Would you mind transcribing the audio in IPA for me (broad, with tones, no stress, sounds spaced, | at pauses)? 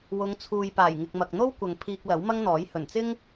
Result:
w ʊ˨˧ ŋ t͡sʰ uː˨ j p aː˨˩ j ŋ ɪ˨ k̚ m ɐ˨ k̚ n̪ o˥ w kʷ ɐ˨ ŋ pʰ iː˧ k̚ l ɐ˨˥ w m ɐ˥ ŋ n̪ ɔː˨˥ j h ɵ˨˩ n t͡s ɪ˥ ŋ